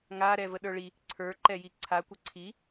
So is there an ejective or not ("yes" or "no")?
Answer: no